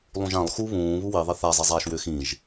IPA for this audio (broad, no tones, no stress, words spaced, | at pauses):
lˠũʒãlˠ xu βũː βuwiðˤɪ θazˤizˤaːʃ wʏːxĩʒ